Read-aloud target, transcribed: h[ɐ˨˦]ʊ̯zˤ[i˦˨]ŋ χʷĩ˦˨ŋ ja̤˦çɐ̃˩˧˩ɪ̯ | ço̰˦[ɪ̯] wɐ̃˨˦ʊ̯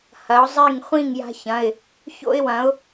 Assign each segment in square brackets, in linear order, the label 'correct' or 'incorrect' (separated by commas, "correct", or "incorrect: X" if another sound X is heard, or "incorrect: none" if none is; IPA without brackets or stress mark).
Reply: correct, correct, correct